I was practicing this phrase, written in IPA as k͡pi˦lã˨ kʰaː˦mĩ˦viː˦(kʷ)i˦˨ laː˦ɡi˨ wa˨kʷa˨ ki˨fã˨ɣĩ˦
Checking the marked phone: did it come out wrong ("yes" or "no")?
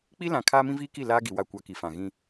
yes